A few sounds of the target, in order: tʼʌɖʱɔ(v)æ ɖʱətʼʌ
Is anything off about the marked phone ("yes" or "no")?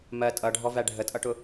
no